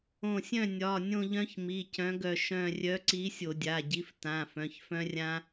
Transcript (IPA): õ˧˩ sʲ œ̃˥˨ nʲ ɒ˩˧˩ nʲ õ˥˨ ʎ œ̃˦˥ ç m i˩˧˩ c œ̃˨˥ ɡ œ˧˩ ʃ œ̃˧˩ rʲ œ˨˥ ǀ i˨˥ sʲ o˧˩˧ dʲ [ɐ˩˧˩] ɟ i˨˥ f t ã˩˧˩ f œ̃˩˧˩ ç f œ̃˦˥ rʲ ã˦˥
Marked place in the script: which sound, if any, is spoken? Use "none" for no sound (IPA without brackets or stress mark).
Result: a˩˧˩